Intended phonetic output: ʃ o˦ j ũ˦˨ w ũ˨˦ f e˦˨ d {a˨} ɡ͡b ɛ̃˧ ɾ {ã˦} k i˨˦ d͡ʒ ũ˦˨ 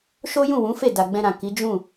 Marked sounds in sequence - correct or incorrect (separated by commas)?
correct, incorrect